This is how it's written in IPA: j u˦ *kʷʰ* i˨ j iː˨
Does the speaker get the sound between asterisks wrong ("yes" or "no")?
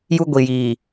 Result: yes